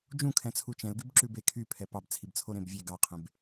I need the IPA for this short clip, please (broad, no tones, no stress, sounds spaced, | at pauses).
d͡ʒ ũ kʰ ɛ̃ t͡sʰ u t͡ʃ ɛ̃ l ɡ y b ǁ ʉ b e kʰ y pʰ ɛ p ɑ b t͡sʰ i b t͡sʰ o ɾ ẽ b vʲ e ɡ ɑ qʰ ẽ b